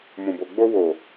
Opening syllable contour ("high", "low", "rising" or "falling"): low